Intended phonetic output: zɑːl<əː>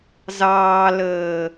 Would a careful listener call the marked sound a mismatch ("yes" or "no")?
no